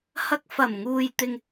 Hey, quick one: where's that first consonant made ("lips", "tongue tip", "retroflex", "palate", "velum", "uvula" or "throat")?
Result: throat